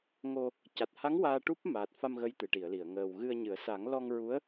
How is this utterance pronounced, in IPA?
ŋo˨˩ | ca˨˩t̚ha˧˥ŋ waː˧ʈu˦˥p̚ maː˨˩t̚fa˧m ɣə˧˥jt̪ɨ˨˩˨ʈi˨˩˨ə̯li˨˩˨ə̯ ŋəː˨˩wɣɨ˧ə̯ɲɨ˨˩˦ə̯ sa˨˩˦ŋlɔ˧ŋ ɹu˧˥ə̯

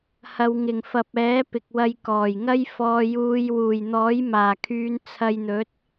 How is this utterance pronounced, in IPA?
hɐ˨˧wŋɪ˨˩ŋ fɐ˨p̚ɛː˨˥ pɪ˨k̚wɐ˧jkɔː˨˩jŋɐ˥j fɔː˨juː˨˧j wuː˨˩jn̪ɔː˨˥jmaː˨˩kʰyː˨˧n t͡sʰɐ˧jn̪ɵ˨˥t̚

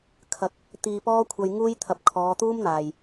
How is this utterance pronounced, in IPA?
kʰɐ˨˥k̚ | t̪iː˧pɔː˥kʷʰɐ˧j ŋuː˥jt̪ʰɐ˧p̚ kʰɔː˨˧t̪uː˥mn̪aː˨j

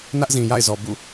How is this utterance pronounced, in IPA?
nä˦ʔzĩ˨ja̰˦˨ɪ̯ zɔ˨bṵ˦˨

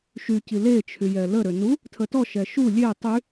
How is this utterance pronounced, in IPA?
ʃyci let͡ʃʰyjɛ ləɾø nu | tʰətɔʃɛ ʃu lʲe tˤy

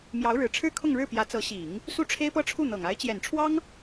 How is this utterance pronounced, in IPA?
mjɑ˧˥ʊ̯ɻɻ̩˨˩ʈ͡ʂʰɻ̩˥ kʰʊ˥˧ŋɻɻ̩˥˩pjä˧˥ t͡sɤ˧˥ ɕi˨˩˦ŋ | su˥ʈ͡ʂʰe˥ɪ̯pɤ˥ʈ͡ʂʰu˥˩ n̪ɤ˨˩ŋ a˧˥ɪ̯t͡ɕjɛ˨˩n ʈ͡ʂʰwɑ˥ŋ

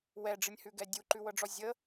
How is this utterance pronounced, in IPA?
wɛɖ͡ʐɨnʲhʉɡɛ dʲuǃʉwɤɖ͡ʐɔ zʲə

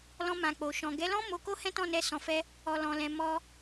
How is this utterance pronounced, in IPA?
lɔ̃˧ mã˨k͡po˨ʃɔ̃˨ ɡɛ˨˦lɔ̃˦ mo˧ko˦ hɛ̃˦tɔ̃˦˨nɛ˧ sɔ̃˨fɛ˧ | ɔ˨lɔ̃˨lɛ̃˨ mɔ˧

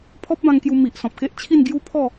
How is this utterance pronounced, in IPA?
pʰɔ˦p̚bã˧ŋkju˧ mi˨ʔ sɔ̃˨p̚ke˦ʔt͡ɕʰi˥˧n ɡju˦ pʰɔ˥˧

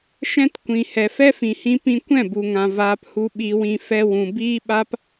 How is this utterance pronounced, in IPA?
ʃɛ̃˦tkʷĩ˨ hɛ˨fɛ˦fĩ˨hĩ˧ pĩ˧kʷɛ̃˦˨bu˨ŋã˨ vaː˧phu˧ ɓi˧wĩ˧ fɛ˧wũ˨ biː˦ɓa˦p

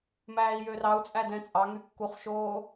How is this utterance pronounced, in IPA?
mæːi̯jørɑu̯t͡sʼæ dɛ̃ t͡sʼɑŋy kːuχʃoː

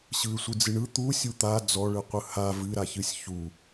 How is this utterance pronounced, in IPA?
ɕɯɪ̯sʷɨd͡zɨɳɯ t̪u sʲut̪a d͡zɔɭɯqʷɯ ha vɨɾaçɨsʲ çu

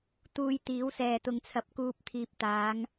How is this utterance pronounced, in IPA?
t̪uː˧jt̪iː˨˥wsɛː˨ t̪ʊ˨˧ŋt͡sʰɐ˨p̚kuː˧p̚t̪ʰiː˨p̚ t̪aː˨˧ŋ

